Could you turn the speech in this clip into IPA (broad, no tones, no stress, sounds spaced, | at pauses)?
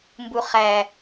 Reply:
m b u χ æ